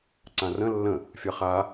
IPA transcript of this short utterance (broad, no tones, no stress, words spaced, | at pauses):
ǀãrə̃ lːə̃ | fʲɐχa